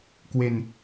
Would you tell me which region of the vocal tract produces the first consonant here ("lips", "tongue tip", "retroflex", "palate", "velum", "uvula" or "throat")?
velum